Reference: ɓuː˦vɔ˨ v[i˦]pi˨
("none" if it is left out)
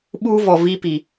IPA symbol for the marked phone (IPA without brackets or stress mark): i˦